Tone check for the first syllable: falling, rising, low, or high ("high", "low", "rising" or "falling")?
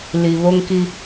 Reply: low